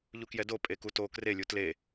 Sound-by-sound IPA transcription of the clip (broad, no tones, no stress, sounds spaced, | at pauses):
ʎ u k j ɛ d o pʼ e k u t o k r e lʲ u t l e